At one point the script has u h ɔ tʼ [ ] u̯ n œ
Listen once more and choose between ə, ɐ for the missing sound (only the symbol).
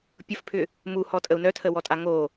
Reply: ə